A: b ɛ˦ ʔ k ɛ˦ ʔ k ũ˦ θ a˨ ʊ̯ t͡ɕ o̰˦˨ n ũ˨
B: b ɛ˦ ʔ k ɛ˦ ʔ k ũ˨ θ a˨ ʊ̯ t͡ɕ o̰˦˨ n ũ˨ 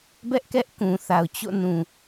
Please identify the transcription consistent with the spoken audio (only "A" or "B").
B